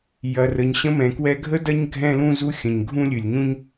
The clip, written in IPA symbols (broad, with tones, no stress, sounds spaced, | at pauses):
j ɐ˩ r ə˩ ɲ ɕ ə̃˧ m ɛ̃˩ k w ɛ˧ ɡʱ ə˥ d ɐ˥ ɲ ɡʱ ɛ̃˧ l ũ˧ z u˧ xʲ ə̃˩ ɲ ɡʱ ũ˥ lʲ ɨ˩ lʲ ɲ ũ˥ ɲ